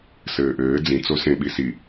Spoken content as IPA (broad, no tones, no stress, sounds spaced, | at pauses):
s ɘː ʔ ɘː d͡z ĩ t͡s o s ẽ ɓ i s i